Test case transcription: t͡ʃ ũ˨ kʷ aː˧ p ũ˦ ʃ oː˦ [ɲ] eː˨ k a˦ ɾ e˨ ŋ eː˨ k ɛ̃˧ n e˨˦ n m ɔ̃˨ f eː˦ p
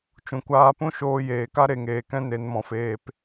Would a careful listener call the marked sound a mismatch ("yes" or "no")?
yes